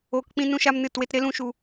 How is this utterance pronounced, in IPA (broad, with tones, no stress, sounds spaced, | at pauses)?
oː˧ k k͡p ĩ˦ n ũ˦ ʃ a˦ m n ɨ˦˨ t w e˦ t ɾ e˦ l ũ˦ ʃ u˧